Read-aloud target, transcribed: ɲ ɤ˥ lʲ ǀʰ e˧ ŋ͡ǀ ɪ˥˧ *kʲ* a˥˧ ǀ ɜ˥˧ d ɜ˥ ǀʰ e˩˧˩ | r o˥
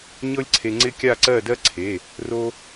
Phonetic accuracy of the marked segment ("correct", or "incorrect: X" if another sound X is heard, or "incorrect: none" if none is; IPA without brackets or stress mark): correct